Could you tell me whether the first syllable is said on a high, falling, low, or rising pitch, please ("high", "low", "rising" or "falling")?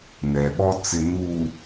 low